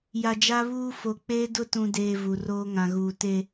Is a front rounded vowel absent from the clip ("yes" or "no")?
yes